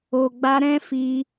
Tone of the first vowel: low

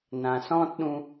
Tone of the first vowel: low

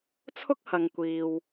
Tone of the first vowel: high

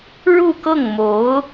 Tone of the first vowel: falling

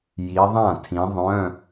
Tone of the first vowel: rising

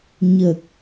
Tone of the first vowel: low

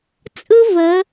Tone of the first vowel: high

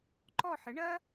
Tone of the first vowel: falling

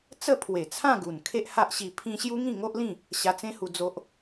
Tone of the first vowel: falling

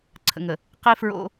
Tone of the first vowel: low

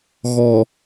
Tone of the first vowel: low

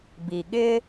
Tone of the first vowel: low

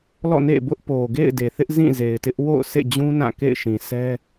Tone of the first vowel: falling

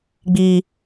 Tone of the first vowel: low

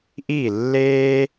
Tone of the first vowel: falling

